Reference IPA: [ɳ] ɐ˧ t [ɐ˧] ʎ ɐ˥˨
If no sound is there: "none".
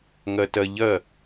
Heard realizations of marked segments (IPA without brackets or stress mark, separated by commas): ŋ, ɐ˧